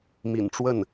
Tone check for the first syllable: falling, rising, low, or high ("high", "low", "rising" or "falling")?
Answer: low